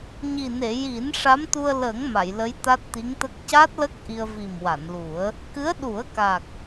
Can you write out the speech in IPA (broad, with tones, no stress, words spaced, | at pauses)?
ɲi˨˩ne˨˩˨ ji˨˩˦n ʂa˧˥mt̪u˧ə̯lə˨˩˦ŋ ma˨˩˨j lə˧˥j t̪a˦˥t̚t̪i˧˥ŋt̪ə˦˥k̚ ca˦˥t̚lə˦˥k̚ ʔi˧ə̯vi˨˩mwa˨˩˨nlu˨˩˦ə̯ | kɨ˧˥ə̯ɗu˨˩˦ə̯ka˨˩k̚